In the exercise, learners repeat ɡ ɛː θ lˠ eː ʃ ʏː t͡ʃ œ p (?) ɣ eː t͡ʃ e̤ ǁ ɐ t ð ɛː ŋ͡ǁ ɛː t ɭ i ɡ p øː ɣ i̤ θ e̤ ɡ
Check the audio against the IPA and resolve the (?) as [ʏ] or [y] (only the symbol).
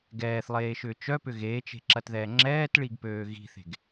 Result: ʏ